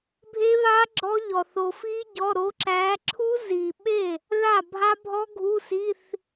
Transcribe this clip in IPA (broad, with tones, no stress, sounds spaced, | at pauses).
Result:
bʱ e˦˥ β a˦˥ ɡ͡ǁ ɔ˦˥ ʎ ɔ˨ θ o˨ f i˦˥ ɟ ɔ˧˥˧ ɾ o˨˦ ǁ æ˨˦ ǁʰ u˦˥ z i˨ ɓ e˥˩ | ð a˥˩ bʱ a˦˥ bʱ ɔ˦˥ ɡʱ u˧˥˧ s i˧˥˧ θ